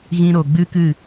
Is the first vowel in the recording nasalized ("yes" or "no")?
yes